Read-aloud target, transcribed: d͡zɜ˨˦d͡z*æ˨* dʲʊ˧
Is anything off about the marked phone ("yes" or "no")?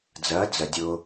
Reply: yes